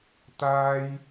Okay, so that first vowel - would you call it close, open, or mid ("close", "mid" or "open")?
open